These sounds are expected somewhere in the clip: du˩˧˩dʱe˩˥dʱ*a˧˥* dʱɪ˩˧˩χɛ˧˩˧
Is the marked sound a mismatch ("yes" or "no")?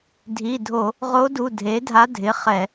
no